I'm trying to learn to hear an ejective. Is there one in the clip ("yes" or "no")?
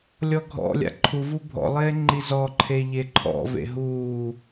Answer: no